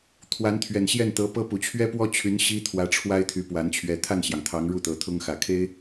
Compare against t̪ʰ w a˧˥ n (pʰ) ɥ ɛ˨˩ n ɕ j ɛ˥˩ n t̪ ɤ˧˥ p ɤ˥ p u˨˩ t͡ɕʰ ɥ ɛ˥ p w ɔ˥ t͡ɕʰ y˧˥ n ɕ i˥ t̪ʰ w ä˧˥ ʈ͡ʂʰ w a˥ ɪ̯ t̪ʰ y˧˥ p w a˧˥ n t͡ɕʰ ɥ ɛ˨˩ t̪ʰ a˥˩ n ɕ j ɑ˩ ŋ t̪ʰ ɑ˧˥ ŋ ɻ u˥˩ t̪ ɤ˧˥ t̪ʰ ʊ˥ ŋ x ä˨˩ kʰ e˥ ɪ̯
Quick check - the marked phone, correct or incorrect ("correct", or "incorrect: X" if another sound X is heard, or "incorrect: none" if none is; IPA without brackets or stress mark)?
incorrect: t̪ʰ